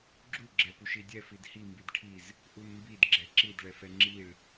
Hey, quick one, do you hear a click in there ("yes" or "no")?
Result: yes